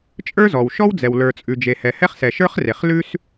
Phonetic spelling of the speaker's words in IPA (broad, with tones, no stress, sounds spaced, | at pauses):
t͡ʃʼ ə˞˥ z ɔ˩ w ʃ ɔ˥ w d͡z ɛ˩ w l ə˞˩ t͡sʼ ʉ˩ d͡ʒ e˩ h ɛ˩ h ɛ˥ χ s ɛ˩ ʃ ə˞˥ χ r e˩ χ l ʉ˥ s